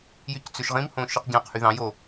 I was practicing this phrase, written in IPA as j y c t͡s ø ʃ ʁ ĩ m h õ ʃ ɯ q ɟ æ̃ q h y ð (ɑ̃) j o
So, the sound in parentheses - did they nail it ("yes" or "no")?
yes